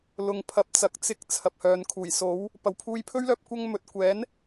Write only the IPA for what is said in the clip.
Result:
l ʊ˨ ŋ pʰ ɐ˨˥ p̚ t͡s ɐ˨ k̚ t͡s ɪ˧ k̚ t͡sʰ ɐ˨ p̚ h œː˨ n kʰ uː˨˩ j s o˨˥ w | p ɐ˨ w pʰ uː˧ j pʰ ɵ˥ ɥ l œː˧ p̚ kʷ ɐ˥ ŋ m ɵ˨ t̚ kʷ ɛː˨˥ n

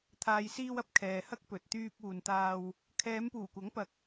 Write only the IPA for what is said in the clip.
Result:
t̪ʰ aː˨ j s iː˧ w ɐ˥ p̚ kʰ ɛː˨ h ɐ˥ k̚ p ɵ˨ t̚ t̪ yː˧ p̚ uː˨ n t̪ aː˧ w | kʰ ɛː˨˧ m p uː˨˩ kʷ ɐ˨˥ ŋ p ɐ˨ k̚

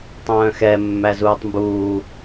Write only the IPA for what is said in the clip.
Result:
tˤ œ̃ː x ɛ mː æ z uː tˤ m b uː

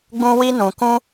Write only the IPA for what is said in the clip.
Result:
ɡ͡b ũ˦ w i˦ n ũ˧ k ũ˦

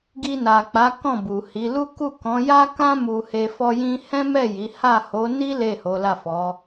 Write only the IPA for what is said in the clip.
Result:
ɡ i˧ n a˨ k͡p a˨˦ k ɔ̃˦˨ b u˨ h i˨˦ l u˦ k u˦˨ k ɔ̃˨˦ j a˦ k ã˦ m u˧ h e˧ f ɔ˦ j ĩ˦ h ɛ̃˦ m ɛ˦˨ j i˨˦ h a˦˨ h o˨˦ n i˦ l e˦˨ h o˨˦ l a˦˨ f ɔ˨˦

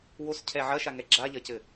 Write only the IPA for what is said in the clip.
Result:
w o s cʰ ɛ ʕ ɐ ʃ a ŋ ɛ ɡ͡ǁ a ʎ ɐ c ɘ

